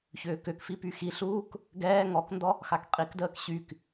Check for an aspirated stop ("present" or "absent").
absent